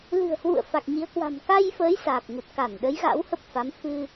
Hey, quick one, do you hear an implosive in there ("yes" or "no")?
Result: yes